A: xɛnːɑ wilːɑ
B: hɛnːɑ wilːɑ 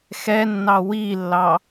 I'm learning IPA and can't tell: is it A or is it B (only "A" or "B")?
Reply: A